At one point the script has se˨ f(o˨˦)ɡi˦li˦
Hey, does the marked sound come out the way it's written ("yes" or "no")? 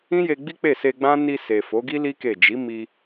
yes